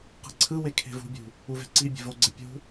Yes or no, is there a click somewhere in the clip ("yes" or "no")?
yes